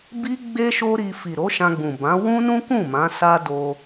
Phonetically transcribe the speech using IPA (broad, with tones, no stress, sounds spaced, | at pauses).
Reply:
b i˦ ɡ͡b e˦ ʃ o˦ ɾ i˧ f i˨ ɾ o˨˦ ʃ ã˧ ɡ͡b ũ˨ b ã˨˦ w ũ˦ n ũ˦ k ũ˦˨ m ã˨˦ s a˦ d o˧